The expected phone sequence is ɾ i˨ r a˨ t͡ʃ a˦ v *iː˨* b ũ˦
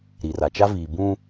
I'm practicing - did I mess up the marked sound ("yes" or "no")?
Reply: no